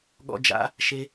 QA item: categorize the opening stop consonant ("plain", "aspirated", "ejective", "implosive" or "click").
implosive